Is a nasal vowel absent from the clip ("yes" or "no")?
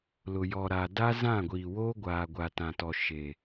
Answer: no